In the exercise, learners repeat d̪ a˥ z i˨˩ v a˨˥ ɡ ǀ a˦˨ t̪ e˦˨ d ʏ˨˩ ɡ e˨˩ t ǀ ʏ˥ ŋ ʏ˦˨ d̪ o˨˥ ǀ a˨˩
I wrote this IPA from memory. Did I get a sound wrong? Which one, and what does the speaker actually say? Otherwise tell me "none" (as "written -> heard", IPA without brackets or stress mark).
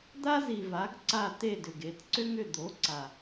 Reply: none